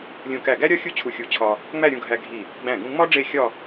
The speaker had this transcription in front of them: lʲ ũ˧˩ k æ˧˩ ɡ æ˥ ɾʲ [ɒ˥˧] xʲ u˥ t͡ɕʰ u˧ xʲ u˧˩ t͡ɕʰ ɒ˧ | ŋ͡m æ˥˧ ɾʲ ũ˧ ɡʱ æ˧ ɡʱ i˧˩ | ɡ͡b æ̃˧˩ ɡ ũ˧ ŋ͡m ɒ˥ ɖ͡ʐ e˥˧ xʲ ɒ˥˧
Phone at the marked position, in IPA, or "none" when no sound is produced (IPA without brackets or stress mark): ɒ˥